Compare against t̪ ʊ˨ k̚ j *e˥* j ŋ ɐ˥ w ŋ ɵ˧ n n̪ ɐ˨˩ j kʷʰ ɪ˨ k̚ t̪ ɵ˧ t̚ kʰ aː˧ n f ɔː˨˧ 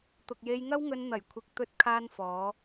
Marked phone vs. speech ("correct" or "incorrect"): incorrect